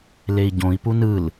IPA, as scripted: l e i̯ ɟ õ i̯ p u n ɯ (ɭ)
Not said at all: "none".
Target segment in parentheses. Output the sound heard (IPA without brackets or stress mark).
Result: l